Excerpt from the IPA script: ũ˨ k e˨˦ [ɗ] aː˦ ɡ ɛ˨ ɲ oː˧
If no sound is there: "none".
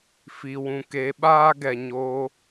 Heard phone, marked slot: ɓ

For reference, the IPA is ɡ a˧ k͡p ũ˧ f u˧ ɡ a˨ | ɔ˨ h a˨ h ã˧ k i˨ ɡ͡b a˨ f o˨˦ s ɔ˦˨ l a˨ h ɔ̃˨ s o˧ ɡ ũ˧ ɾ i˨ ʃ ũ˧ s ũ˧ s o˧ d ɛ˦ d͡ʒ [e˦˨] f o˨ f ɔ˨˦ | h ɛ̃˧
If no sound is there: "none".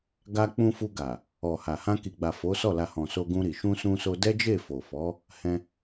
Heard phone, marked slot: e˦˨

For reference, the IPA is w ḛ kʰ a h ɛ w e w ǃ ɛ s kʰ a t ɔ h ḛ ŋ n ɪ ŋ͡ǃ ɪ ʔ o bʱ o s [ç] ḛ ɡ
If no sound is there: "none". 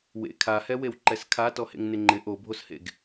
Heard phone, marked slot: h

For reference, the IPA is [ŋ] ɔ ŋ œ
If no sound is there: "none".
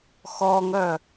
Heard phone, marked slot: x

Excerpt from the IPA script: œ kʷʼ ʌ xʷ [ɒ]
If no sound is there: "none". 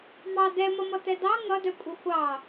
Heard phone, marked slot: ɑ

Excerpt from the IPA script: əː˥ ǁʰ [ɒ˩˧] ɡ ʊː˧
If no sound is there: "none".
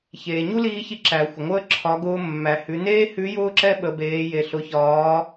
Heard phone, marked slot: ɒ˩˧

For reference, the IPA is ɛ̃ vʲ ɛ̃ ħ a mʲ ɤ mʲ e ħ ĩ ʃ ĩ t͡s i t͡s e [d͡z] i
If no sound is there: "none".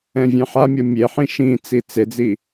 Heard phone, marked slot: d͡z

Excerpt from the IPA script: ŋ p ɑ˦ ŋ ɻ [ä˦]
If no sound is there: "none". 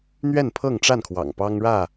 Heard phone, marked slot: ä˥˨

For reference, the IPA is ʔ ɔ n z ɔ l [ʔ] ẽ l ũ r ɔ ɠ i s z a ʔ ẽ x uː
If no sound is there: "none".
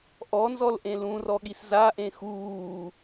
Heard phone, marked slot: ʔ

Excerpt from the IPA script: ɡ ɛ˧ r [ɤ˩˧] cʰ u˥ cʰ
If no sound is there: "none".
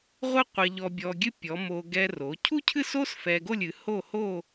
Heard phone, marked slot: o˩˧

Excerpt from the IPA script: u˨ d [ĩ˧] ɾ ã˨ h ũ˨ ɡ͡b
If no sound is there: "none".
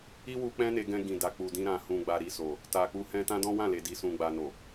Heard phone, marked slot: ĩ˧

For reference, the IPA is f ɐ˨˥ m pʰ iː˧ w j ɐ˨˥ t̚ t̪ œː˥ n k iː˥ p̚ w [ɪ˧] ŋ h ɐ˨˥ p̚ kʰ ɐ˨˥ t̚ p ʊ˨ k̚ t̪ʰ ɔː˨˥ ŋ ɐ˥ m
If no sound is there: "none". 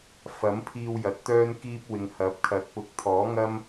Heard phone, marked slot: ɪ˨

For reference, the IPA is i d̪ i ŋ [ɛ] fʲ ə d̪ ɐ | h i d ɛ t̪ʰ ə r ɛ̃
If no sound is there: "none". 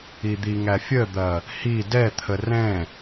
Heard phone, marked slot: æ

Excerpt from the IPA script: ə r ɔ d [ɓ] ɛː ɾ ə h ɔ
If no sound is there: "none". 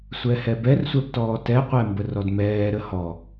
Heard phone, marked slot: m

